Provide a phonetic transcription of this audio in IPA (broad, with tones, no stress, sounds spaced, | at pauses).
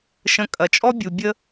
ʃ ə̃˧ kʼ ɐ˨ t͡ʃʼ ɔ˦ bʲ u˨ bʲ ə˦